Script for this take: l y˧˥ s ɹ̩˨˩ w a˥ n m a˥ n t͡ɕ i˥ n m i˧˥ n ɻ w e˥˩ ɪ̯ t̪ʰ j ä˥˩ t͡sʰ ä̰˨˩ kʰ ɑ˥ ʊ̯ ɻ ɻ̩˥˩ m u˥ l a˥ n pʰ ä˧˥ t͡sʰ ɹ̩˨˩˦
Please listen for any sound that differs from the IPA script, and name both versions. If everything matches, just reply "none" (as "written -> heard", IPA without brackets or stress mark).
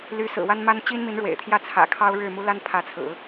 e˥˩ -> ḛ˨˩